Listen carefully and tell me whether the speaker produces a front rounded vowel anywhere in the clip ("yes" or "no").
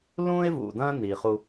no